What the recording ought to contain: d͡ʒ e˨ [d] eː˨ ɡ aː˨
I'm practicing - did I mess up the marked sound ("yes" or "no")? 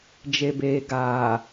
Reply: yes